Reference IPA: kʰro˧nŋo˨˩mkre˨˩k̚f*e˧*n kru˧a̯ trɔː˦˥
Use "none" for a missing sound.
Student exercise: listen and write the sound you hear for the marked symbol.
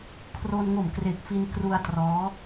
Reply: i˧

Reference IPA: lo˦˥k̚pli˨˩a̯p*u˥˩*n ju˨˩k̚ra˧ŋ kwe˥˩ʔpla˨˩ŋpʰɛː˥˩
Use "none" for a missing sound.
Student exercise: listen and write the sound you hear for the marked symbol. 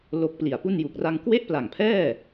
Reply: u˥˩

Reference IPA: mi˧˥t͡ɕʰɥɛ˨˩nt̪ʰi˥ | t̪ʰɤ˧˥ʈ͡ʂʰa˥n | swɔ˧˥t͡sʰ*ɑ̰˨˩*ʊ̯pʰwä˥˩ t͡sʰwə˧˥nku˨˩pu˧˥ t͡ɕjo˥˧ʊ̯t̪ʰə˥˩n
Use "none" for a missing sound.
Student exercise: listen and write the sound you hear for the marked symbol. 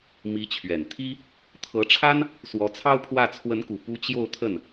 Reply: ɑ˥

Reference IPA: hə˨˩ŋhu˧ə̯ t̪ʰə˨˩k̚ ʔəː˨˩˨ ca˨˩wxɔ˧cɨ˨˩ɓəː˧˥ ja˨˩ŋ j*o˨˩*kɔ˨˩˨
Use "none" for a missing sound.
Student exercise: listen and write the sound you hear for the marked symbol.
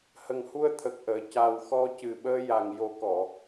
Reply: o˨˩˦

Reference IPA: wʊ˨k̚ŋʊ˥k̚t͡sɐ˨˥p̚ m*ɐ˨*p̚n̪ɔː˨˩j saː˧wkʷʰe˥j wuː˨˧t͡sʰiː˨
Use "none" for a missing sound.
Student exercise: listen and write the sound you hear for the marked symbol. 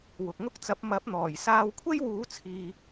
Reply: ɐ˨˥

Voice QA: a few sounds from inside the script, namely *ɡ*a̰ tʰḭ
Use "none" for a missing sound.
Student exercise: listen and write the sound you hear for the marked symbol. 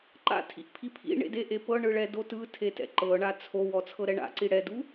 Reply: ǃ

